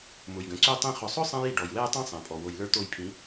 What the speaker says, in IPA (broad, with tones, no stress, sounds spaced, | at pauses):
m ʊ˨ j ɡ ə̃˨ ǀ y˦ tˤ ĩ˦ χ ʊ˨ sˤ ʊ˦ sˤ ɛ̃˧ j i˨ ɖ ɔ˨ j w ɛ˦ j tˤ ĩ˦ sˤ ɛ̃˨ pʼ ɔ˨ w o˨ j l ə˞˦ t̪ o˦˨ j pʰ ĩ˨˦